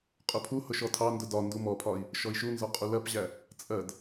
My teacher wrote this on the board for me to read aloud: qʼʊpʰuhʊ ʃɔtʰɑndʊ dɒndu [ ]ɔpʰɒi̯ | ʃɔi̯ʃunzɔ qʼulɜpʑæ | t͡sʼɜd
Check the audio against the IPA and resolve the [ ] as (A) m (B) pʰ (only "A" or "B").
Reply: A